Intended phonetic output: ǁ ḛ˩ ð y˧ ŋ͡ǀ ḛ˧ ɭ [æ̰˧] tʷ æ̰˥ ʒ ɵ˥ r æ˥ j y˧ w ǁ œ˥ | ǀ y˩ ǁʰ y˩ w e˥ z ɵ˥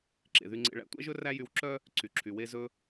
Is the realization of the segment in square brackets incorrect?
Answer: no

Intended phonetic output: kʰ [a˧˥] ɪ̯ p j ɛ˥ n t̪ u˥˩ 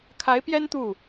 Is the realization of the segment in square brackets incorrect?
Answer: no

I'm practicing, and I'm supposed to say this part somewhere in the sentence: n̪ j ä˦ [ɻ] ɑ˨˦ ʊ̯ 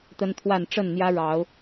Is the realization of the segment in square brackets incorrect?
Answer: no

